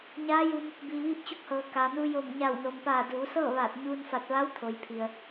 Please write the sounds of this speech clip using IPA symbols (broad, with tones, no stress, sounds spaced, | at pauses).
ɲ aː˧˥ j u˧ m | b iː˩ ʋ iː˧ p̚ t͡ɕ u˧˥ k̚ h ɤː˩ k a˩ n u˧ j o˧˩ m ɲ a˧˩ w n o˩ m p aː˧˩ d uː˩˧ s ɤː˥˨ ʋ aː˧˩ t̚ ɲ uː˧ n f a˧˩ t̚ ʋ a˧˥ w t̪ʰ o˩ j pʰ i˩ ə̯